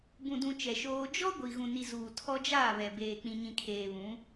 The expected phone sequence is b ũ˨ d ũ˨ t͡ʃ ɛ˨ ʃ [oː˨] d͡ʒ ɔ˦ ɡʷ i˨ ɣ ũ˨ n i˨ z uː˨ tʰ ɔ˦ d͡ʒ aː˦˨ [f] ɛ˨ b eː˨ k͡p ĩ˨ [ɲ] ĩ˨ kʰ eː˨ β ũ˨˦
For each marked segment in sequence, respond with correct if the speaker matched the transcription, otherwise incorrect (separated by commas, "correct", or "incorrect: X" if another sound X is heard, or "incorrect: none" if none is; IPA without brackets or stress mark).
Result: incorrect: oː˦, incorrect: β, correct